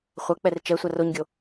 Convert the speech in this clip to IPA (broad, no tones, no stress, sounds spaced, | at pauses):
χʷ ɐ k͡p ɛ r t͡ʃ ɛ sʷ a r o ɲ ɡʲ o